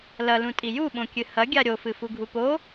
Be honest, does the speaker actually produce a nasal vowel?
yes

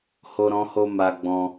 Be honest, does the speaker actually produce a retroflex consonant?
no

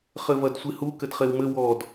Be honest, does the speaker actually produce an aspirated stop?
no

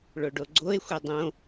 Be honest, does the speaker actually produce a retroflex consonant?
yes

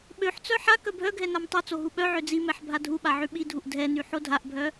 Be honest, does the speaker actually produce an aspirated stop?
no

